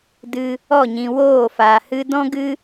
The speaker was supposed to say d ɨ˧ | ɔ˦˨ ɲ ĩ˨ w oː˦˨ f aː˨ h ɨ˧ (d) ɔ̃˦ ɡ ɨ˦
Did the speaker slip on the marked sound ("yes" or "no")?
no